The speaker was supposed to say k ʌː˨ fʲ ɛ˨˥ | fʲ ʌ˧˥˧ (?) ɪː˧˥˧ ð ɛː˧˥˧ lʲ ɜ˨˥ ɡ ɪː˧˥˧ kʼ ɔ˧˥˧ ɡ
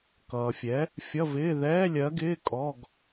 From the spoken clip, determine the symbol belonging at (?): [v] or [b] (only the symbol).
v